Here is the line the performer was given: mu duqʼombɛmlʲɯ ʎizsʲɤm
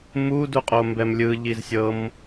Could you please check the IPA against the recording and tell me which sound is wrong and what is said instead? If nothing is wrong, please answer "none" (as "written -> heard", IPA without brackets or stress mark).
none